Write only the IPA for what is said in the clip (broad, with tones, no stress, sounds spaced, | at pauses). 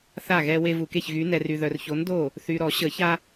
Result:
θ a˥˩ ɣ ɛ˦ w e˦ v u˨ k e˥˩ ç ɣ y˨˥ n ɛ˨ r y˨ ð œ˨ r ç o˨˥ n d o˥˩ | θ y˨ ɾ ɔ˨˩˦ ɕ ə˨˩˦ ç a˦